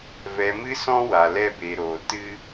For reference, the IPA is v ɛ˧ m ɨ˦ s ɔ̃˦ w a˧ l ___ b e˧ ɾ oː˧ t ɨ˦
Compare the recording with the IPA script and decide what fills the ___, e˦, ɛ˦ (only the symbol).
ɛ˦